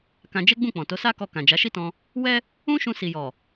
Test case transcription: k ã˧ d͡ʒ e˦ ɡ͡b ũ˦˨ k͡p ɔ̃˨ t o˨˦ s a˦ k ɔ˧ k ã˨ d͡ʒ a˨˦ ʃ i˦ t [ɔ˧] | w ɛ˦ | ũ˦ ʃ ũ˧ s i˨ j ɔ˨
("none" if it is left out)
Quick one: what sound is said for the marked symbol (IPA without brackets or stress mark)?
ɔ̃˧